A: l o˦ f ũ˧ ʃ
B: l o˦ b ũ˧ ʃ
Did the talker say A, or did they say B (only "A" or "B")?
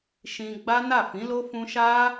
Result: A